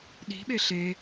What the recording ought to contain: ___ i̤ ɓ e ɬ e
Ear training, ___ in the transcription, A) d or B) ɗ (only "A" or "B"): B